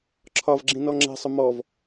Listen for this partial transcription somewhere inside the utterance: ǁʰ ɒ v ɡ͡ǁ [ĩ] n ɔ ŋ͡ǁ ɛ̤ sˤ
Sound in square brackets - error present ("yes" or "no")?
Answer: no